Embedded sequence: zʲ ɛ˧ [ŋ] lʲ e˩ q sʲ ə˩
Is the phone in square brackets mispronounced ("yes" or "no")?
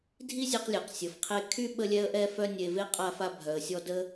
yes